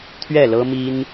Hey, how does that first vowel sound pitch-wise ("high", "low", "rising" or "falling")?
falling